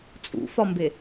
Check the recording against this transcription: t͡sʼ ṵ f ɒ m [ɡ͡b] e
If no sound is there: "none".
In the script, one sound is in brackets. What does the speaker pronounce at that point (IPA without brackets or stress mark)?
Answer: b